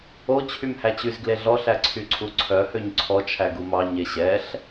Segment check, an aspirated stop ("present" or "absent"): present